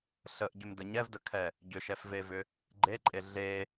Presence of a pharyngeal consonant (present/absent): absent